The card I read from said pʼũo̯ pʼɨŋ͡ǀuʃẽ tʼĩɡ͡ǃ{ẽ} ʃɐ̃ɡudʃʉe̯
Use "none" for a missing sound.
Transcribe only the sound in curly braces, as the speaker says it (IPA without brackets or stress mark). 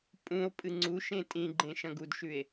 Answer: ẽ